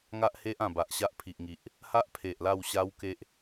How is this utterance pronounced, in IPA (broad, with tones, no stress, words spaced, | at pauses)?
ŋa˦ʔhe˦ʔã˨˩ ba˨ʔɕa˦ʔpʰi˨ʔŋi˨ʔ | ha˦ʔ pʰe˨ʔla˥˧wɕa˦wke˦ʔ